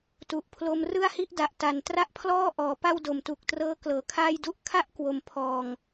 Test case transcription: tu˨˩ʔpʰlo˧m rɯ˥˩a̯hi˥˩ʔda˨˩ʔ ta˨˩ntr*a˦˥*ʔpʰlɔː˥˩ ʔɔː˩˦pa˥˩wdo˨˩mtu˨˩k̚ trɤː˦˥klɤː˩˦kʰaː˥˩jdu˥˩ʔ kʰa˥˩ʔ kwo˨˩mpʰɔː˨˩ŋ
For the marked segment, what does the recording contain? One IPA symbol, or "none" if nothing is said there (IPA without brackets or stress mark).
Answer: a˥˩